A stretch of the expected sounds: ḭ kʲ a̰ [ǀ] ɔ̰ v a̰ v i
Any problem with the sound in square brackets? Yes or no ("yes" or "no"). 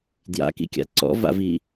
no